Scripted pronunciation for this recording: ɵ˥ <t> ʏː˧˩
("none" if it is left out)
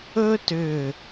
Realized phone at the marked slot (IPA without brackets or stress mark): t